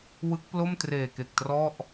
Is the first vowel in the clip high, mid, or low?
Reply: high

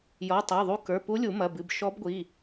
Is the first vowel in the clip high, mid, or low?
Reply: mid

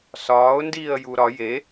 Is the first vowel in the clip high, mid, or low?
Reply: low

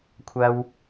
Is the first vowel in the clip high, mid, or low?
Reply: low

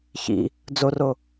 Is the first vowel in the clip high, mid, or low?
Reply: high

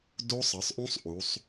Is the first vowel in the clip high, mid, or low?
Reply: mid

